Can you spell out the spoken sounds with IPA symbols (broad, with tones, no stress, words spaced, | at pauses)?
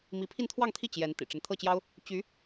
mi˧˥pʰi˥˧nt̪ʰwɑ˥˧ŋt̪ʰi˥˩ t͡ɕjɛ˧˥n t̪ḭ˨˩ʈ͡ʂə˦n t̪ʰɤ˥˩t͡ɕjɑ˥ʊ̯ | t͡ɕy˧˥